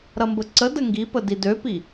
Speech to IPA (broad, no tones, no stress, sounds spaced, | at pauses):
ɾ ɐ m b ə ǀ ə d ə ŋ ɡ i p ə d i d ø p i